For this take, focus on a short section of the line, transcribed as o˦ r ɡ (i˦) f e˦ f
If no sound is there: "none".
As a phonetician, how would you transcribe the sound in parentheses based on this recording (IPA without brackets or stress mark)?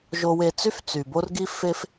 i˦